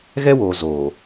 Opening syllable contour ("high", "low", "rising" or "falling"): high